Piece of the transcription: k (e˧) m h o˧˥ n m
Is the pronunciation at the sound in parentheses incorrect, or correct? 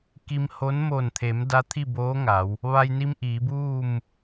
incorrect